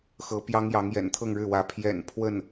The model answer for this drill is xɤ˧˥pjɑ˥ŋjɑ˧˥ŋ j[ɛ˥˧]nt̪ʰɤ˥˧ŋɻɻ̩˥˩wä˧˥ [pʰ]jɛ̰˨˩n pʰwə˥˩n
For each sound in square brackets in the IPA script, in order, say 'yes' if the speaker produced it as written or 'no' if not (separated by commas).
no, yes